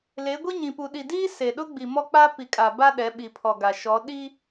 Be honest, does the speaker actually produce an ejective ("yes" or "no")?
yes